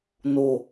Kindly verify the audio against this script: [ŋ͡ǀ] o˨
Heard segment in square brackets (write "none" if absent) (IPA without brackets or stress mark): n